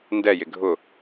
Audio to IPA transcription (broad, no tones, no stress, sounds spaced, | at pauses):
n d ɛ j ɪ ɡʱ ʊ